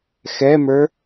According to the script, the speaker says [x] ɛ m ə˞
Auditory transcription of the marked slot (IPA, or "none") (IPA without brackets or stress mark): x